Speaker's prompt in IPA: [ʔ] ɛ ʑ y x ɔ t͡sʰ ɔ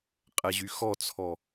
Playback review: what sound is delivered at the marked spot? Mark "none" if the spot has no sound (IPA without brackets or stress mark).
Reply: qʼ